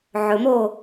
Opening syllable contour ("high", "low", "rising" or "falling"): low